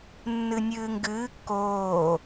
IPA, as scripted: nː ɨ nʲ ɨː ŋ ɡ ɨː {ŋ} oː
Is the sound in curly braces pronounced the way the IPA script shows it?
no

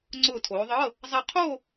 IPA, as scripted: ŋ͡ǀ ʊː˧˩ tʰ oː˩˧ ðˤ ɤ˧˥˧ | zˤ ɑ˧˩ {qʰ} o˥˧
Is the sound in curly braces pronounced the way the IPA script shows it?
yes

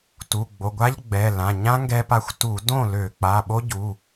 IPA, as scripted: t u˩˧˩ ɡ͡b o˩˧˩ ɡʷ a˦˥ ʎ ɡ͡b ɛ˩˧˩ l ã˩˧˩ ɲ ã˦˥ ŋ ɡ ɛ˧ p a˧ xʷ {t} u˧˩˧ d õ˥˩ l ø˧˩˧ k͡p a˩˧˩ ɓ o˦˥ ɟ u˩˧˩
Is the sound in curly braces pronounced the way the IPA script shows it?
yes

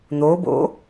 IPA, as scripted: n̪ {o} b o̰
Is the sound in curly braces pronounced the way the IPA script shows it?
yes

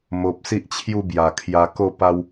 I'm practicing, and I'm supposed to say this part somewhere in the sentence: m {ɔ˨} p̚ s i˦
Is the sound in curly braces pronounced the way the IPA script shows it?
no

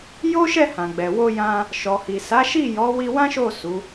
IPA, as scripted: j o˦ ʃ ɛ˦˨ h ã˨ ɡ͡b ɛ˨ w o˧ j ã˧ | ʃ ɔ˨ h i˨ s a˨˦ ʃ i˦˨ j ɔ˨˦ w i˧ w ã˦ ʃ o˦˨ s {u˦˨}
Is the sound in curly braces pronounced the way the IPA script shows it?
no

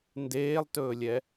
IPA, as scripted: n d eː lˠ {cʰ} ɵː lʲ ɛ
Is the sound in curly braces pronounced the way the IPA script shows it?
no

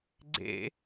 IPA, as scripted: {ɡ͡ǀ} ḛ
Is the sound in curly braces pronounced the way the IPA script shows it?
yes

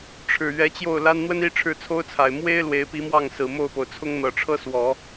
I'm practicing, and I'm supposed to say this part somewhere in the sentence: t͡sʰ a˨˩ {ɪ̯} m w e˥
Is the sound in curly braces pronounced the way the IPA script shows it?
yes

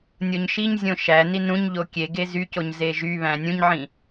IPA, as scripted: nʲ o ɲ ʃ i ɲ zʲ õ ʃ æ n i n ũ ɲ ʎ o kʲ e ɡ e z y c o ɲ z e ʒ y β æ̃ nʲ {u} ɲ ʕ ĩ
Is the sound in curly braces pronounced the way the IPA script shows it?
no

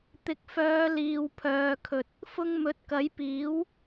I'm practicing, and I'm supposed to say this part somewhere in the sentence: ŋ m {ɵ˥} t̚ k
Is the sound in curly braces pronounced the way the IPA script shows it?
no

